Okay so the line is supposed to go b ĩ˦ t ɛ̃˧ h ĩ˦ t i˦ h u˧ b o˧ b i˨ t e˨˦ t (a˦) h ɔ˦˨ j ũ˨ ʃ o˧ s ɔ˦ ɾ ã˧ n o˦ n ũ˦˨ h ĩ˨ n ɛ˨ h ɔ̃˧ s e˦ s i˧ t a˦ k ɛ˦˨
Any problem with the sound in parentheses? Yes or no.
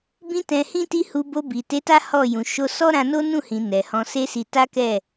no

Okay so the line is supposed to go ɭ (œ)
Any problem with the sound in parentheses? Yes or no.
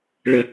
yes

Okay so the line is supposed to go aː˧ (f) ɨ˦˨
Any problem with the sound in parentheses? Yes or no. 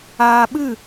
yes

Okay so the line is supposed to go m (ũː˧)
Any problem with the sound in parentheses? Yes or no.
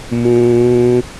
no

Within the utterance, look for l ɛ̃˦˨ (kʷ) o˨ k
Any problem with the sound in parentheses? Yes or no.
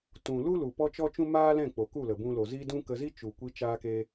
yes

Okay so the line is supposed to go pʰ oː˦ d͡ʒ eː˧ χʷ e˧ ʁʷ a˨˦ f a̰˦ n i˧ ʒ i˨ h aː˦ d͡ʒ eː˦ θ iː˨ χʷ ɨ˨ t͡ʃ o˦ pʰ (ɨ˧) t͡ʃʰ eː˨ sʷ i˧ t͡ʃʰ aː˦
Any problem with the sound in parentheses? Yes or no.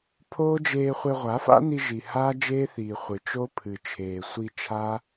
yes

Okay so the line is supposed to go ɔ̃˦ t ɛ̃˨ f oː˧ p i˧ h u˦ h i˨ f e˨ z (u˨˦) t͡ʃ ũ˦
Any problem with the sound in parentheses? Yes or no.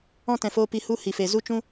yes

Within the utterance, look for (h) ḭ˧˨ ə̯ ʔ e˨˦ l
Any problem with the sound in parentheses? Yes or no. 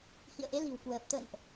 no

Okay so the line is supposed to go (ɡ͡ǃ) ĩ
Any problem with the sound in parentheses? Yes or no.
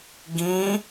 yes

